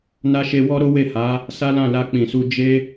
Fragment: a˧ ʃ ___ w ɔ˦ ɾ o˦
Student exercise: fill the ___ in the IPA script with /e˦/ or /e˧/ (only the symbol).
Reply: e˧